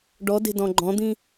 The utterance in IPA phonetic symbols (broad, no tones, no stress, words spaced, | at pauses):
ɖɔde̤dɔ̃ ɡ͡ǃɔ̃d̪ĩ